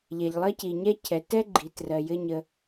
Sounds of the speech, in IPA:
ʎɛ˩ʎlˠɜ˥ci˩ ɲɛ˥cʰɛ˩ tɛ˥ɡ͡ǃi˩ trɜ˩jɘ˧ ɲə˩

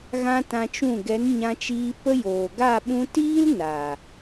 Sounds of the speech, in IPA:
ɣã˦tã˧t͡ʃũ˦˨ ɡɛ˨˦nɲã˧t͡ʃiː˧ pə˦joː˨ ɡa˦˨ɓũ˧ tiː˦l na˨

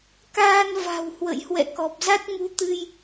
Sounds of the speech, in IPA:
kaː˧nva̤˨˩w hwə̰˧˨jhwɛ̰˧˨kɔ˨˩p̚ za˦˥t̚ŋu˨˦t̪ɨ˧j

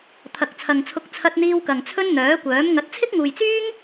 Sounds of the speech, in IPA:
t̪ʰɐ˨k̚t͡sʰɐ˨ŋt͡sʰʊ˧k̚ t͡sʰɐ˧t̚n̪iː˧wkɐ˨ŋ t͡sʰɵ˥nn̪œː˨˥kʷœː˨˥m ŋɐ˨˥t̚t͡sʰɪ˥k̚ŋuː˨jt͡syː˥ŋ

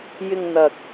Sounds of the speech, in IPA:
jɪ˧ŋn̪ɐ˨k̚

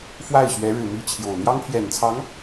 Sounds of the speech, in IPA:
fwa˥˩ɪ̯ɕɥɛ˧˥ ɻɻ̩˨˩ mi˥˩t͡ɕʰjo˨˩ʊ̯ n̪jɑ˥ŋpʰjɛ˨˩nt͡sʰɑ˧˥ŋ

